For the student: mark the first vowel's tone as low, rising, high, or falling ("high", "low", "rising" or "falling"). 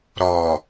low